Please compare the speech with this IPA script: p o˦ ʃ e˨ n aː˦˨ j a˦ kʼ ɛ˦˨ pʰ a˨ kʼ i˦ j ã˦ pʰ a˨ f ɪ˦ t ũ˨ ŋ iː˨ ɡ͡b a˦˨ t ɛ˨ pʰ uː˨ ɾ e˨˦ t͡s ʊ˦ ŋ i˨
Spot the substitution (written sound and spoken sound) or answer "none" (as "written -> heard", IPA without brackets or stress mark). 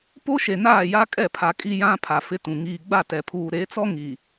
ʊ˦ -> ɔ˦